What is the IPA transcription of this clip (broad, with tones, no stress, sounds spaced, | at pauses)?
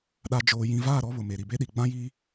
ɗ a˨ d͡ʒ oː˨ j ĩ˨ v aː˦˨ ɾ ɔ˦ β ʊ˨ m e˨ ɾ i˨ b e˦ ɗ i˨ ɡ͡b ã˦ j iː˦